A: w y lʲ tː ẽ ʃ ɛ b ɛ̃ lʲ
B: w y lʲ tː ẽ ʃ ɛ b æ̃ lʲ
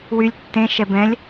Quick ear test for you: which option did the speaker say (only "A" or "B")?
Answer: A